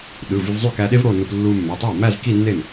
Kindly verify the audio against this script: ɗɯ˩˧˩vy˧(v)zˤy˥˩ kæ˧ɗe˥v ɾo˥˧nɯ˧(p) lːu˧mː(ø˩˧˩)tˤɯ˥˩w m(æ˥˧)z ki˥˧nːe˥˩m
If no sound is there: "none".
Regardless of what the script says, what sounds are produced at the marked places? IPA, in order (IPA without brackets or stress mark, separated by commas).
v, p, ø˩˧˩, æ˥˧